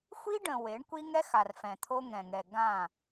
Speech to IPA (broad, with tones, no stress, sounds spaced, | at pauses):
xʷ i˦ ɖ ə̃˨ w e˨˦ ɳ kʷ i˦ ŋ ɛ˦ x a˨ r f ɛ̃˨ t̪ʰ o˦ ŋ ɛ̃˨ ŋ ɛ˨ ɡ ã˦˨